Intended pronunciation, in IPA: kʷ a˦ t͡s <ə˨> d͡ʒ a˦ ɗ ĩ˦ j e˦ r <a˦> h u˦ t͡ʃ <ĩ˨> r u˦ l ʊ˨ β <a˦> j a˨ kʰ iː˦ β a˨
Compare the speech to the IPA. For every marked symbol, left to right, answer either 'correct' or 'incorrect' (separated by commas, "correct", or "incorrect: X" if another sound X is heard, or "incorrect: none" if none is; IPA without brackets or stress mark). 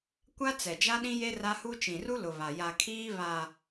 incorrect: ɛ˨, correct, correct, incorrect: a˨